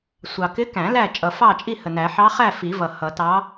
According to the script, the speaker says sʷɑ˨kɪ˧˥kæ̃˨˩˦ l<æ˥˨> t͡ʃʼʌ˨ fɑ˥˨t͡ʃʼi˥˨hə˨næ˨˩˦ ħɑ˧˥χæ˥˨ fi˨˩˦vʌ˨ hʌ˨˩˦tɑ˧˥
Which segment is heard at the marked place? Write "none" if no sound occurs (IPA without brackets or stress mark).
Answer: æ˥˨